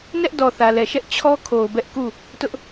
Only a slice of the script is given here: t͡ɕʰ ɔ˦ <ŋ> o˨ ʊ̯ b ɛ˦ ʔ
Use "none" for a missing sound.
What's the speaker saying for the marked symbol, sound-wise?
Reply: kʰ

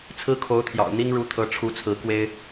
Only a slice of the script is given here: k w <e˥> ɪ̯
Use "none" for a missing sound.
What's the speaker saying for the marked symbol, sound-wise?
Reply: e˥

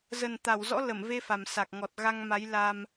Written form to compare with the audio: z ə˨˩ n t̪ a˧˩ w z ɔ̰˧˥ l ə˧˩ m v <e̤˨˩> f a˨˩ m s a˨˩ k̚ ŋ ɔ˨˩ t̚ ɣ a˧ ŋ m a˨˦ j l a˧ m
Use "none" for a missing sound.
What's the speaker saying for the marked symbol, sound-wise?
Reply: e˧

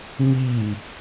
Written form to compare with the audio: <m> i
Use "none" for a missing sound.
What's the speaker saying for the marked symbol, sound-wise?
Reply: m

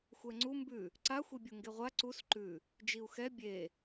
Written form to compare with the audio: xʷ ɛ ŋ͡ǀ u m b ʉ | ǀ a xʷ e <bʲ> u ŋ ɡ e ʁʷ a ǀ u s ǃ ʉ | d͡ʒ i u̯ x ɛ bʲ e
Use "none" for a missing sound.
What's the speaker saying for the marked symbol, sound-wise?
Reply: bʲ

